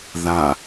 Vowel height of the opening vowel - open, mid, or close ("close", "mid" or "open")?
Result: open